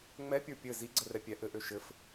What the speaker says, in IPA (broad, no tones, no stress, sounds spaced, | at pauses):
ŋ͡m ɛ pʲ ə˞ pʲ ɘ z i ɡ͡ǀ ə r ɛ pʲ ɛ ʔ ɘ ʔ ø ʃ ɘ f